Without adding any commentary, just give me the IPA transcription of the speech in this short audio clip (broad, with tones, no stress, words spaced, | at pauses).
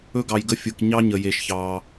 ɵ˦ɡɑ˨jɡə˦fʲɯ˨k ɲɑ˦ɲə˨je˨ʃ çɑ˦